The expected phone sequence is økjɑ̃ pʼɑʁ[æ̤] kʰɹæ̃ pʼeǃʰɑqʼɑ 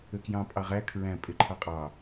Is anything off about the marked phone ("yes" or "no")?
yes